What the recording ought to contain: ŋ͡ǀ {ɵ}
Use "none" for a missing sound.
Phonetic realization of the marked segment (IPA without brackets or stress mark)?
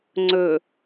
ɵ